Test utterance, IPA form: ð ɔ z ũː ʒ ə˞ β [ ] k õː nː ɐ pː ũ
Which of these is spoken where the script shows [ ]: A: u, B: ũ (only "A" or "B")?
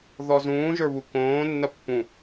A